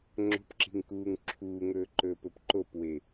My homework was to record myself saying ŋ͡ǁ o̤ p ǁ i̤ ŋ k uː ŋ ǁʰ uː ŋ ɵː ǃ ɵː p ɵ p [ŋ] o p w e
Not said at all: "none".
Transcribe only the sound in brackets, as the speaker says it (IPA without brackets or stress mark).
ǃ